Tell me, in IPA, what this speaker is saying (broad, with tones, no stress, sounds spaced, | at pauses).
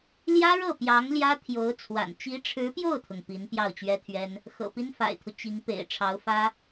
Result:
l j ä˥ ɻ ɤ˥˩ p j ɑ˧˥ ŋ l j ä˥ t̪ʰ j o˧˥ ʊ̯ t͡sʰ w a̰˨˩ n t͡ɕ i˧˥ ʈ͡ʂʰ ɻ̩˧˥ p j o˥˩ ʊ̯ t̪ʰ ʊ˩ ŋ p i˧˥ n p j ɑ˥˩ ʊ̯ t͡ɕ ɥ ɛ˥ t̪ʰ ɥ ɛ˥ n | x ɤ̰˨˩ p i˥ n f a̰˨˩ ɪ̯ t̪ʰ u˦ t͡ɕ i˧˥ ŋ p ḛ˨˩ ɪ̯ ʈ͡ʂʰ ɑ˧˥ ʊ̯ f ä˥